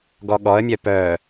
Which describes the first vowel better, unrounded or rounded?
rounded